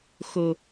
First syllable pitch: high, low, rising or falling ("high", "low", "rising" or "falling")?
low